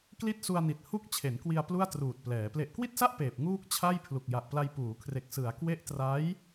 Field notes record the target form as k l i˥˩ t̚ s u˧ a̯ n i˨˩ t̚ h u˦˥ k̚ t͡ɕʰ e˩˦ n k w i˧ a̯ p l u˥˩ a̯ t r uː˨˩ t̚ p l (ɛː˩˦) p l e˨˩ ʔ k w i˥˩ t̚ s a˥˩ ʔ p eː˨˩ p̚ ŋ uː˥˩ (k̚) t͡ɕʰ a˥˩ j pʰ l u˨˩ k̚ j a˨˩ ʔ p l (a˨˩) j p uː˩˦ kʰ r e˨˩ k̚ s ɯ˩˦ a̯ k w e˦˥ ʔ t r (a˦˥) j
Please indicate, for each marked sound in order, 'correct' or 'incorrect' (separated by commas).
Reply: correct, correct, incorrect, correct